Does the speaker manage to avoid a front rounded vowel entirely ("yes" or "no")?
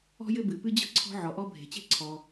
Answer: yes